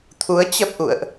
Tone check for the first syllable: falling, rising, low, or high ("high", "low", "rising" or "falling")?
rising